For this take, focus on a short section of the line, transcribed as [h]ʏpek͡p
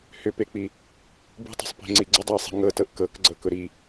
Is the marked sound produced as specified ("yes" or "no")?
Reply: yes